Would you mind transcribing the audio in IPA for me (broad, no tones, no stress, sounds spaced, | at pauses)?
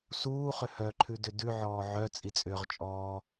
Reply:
s uː χ ʏ h œ ǃʰ ʉ d ʏ d ʉ ʕ ɔː ʕ œ t͡sʼ i t͡sʼ ʏː ʁ t͡ʃʼ ɔː